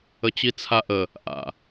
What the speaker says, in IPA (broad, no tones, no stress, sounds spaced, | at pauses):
ə t͡ɕ i t͡sʰ a ʔ ə | ʔ a̰